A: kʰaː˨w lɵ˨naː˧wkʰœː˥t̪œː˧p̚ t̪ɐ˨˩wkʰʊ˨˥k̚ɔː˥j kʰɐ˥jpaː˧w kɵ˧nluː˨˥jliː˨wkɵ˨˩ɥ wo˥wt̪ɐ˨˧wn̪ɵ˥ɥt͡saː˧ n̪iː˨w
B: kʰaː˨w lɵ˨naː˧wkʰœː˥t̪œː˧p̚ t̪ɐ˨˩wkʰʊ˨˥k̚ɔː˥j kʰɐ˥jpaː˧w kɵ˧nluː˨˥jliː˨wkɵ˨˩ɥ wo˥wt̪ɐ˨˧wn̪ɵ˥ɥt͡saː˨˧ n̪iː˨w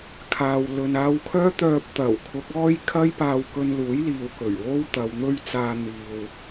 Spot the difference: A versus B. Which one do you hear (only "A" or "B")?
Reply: A